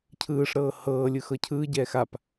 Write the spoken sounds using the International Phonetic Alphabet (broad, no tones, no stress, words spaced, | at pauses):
cʰɯːʂɾɤː hɤː lʲɯxɤcʰɯːɟɛːx ap